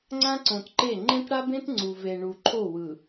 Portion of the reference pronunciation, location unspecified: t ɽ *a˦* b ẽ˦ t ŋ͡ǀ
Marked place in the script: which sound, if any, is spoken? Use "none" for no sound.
a˦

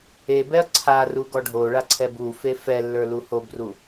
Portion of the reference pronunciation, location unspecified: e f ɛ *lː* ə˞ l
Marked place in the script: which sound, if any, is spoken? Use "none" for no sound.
lː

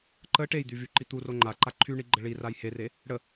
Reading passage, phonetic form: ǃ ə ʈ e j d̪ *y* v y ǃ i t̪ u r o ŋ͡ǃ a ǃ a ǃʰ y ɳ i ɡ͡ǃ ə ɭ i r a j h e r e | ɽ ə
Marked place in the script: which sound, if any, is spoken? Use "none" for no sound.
y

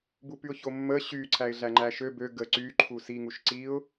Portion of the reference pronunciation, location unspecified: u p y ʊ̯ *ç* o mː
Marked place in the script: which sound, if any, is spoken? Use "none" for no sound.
ç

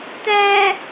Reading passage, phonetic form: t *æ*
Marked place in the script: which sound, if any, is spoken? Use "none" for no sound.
æ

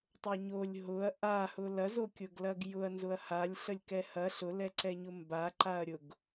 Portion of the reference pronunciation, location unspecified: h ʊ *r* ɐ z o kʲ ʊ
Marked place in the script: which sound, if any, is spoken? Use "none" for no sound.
l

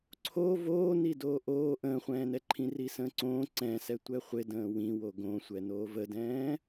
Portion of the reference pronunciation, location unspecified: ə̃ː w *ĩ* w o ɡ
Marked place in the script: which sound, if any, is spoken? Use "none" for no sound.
ĩ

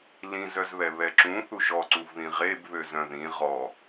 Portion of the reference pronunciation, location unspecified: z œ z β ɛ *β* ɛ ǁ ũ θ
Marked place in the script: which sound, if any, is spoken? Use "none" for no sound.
β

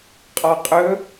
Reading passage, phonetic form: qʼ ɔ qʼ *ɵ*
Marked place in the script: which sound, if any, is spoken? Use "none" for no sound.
ɵ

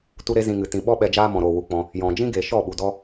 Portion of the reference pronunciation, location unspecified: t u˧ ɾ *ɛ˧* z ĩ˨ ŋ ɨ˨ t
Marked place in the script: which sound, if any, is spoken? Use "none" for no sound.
e˧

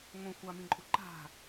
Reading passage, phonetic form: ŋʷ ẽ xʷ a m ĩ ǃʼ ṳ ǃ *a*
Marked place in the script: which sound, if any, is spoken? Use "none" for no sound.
a̤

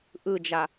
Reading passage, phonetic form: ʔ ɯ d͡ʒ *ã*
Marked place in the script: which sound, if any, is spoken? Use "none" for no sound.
a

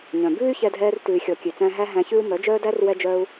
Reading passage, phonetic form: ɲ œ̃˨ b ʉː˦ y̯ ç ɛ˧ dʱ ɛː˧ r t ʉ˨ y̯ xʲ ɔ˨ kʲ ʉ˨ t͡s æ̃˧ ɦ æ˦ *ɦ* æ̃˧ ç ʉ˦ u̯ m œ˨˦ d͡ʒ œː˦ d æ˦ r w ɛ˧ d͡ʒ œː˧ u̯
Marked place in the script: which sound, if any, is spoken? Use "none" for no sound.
ɦ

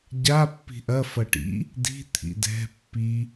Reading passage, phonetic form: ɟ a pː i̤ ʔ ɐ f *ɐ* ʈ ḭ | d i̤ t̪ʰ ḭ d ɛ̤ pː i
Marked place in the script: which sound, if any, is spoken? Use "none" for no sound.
ɐ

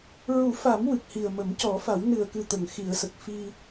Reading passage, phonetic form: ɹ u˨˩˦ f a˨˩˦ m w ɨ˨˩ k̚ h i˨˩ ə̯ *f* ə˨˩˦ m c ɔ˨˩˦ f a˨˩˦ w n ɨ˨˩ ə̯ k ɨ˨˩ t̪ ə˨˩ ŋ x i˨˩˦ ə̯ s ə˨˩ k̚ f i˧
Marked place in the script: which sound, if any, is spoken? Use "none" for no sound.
m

